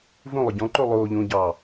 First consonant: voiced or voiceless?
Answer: voiced